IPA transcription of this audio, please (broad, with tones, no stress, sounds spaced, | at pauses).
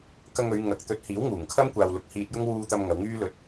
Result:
k ɐ˧ ŋ ɵ˨˧ ɥ ŋ ɐ˨ k̚ t̪ ɵ˨˥ t̚ h iː˨˥ w ŋ uː˨˩ ŋ kʰ ɐ˥ m kʷ aː˨ w l ʊ˨˥ k̚ h iː˧ t̚ j ʊ˥ ŋ w uː˧ t̪ ɐ˧ m ŋ ɐ˨˧ w ŋ yː˥ l ɵ˧ t̚